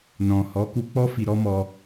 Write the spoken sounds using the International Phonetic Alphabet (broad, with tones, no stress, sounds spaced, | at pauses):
n ɔ̃˨ h ɔ˨˦ k u˧ k͡p ɔ˦ f i˧ ɾ ɔ˦ m ɔ˧